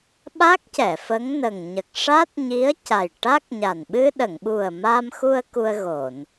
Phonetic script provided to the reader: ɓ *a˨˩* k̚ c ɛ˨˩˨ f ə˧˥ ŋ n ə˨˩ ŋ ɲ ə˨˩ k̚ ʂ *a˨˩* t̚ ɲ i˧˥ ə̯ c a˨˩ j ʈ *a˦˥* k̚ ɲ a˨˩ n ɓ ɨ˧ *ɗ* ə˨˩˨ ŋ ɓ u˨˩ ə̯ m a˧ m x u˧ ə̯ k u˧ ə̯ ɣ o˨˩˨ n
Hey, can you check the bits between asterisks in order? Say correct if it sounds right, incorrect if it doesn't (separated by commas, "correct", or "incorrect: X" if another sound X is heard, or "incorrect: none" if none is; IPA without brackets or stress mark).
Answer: incorrect: a˦˥, incorrect: a˦˥, correct, correct